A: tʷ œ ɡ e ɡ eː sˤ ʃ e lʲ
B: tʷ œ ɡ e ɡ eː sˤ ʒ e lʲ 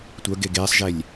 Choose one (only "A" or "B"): B